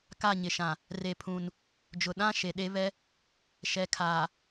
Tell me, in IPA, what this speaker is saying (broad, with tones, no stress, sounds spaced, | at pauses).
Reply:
k a˦˨ ɲ ɪ˨ ʃ ã˨ | r e˨ pʰ ũ˨ n | d͡ʒ ʊ˨ ɗ ã˦ ʃ e˨ ɗ e˦ β ɛ˦ | ʃ ɛ˨ kʰ aː˨